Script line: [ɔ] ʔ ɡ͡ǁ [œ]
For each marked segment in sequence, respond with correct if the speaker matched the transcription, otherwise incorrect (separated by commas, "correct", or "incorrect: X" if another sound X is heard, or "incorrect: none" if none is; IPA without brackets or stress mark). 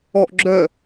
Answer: correct, correct